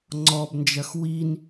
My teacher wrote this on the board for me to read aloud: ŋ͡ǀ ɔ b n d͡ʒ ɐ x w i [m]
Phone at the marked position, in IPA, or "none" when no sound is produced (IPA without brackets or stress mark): n